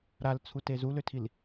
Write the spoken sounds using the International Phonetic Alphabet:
ɾalt͡sʰute zuløtʰil

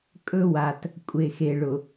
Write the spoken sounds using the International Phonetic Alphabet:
kʼɵ˦wa˨t | kʷʼe˨xe˨ɭʊ˨

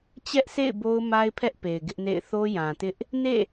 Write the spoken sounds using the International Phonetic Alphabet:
t͡ɕɛ˦ʔsʰḛ˦˨ɪ̯ bo˦ʊ̯ma˦ɪ̯pʰɛ˦ʔ pe˨ɪ̯ɡɪ˦ʔnḛ˦˨ɪ̯ θo˦jã˨tɪ˦ʔ | nḛ˦˨

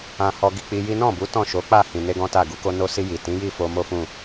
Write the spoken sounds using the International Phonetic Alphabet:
ã˧hɔ˧ɡi˧ k͡pi˧ji˦ nɔ̃˦˨bu˨˦ tɔ̃˦˨ ʃo˨˦k͡pa˦˨ hĩ˨ne˧ ɡɔ̃˦ta˦˨ ɡu˨˦ko˦ no˧si˧ ji˨tĩ˨˦ji˦˨ fo˧mo˦fũ˦˨

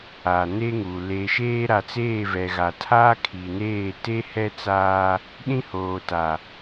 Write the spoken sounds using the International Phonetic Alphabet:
aː˨ne˦ŋu˨ leː˨ʃeː˦ ɾa˨t͡seː˦˨vɛ˨ ɣa˨tʰaː˦kʰiː˨neː˦˨ te˦hɛ˦t͡saː˦ | ɗĩ˦hoː˨ta˨

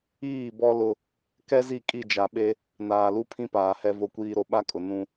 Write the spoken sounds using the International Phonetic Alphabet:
iː˦˨bɔ˦ lʊ˦ | kɛ˦zi˦˨kʼi˦˨d͡ʒa˨ ɓe˦ | naː˨lu˦pʰĩ˦paː˨ hɛ˦vo˦kʷiː˦ɾo˦ ɓa˦kʼʊ˨ nũ˦

